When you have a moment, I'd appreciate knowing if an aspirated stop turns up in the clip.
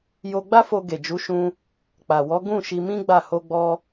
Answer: no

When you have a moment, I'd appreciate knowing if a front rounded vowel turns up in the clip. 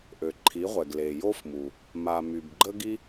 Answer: yes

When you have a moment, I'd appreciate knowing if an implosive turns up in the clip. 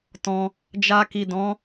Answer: no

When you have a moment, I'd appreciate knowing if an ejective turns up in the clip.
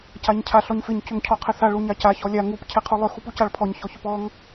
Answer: no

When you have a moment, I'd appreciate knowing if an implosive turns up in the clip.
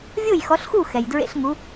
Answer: no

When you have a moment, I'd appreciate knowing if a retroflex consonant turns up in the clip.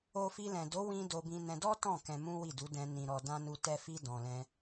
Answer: no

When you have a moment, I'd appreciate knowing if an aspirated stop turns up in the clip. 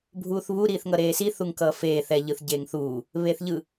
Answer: no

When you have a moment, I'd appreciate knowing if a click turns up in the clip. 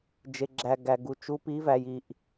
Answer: yes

